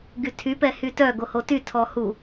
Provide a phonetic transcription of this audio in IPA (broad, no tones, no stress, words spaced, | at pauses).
ɡytʰy pɛhytœ ɡohoty tʰɔhu